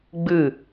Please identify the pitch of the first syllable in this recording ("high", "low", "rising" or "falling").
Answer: falling